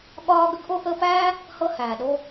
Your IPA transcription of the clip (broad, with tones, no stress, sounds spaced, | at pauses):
ɠ ɒː˦ ɡ ə˦ ɡ ʔ o˦ ʔ əː˦ p æː˥ | h ɤ˥ h æː˩ ɗ o˥